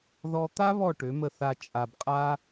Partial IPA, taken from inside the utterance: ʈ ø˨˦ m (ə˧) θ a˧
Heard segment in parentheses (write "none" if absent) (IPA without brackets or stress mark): ə˧